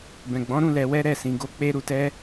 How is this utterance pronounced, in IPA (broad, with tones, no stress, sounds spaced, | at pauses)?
b ɛ̃˨ ɡ͡b ɔ̃˨˦ ɾ ũ˦˨ l ɛ˧ w ɛ˦ ɾ ɛ˦˨ s ĩ˧ ɡ o˦ k͡p e˦ ɾ u˧ t ɛ˦